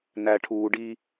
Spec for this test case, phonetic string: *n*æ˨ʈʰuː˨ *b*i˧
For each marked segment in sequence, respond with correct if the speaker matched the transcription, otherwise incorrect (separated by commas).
correct, incorrect